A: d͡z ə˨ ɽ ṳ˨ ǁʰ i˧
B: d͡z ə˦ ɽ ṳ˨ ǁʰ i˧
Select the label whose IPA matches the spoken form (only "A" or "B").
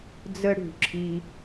B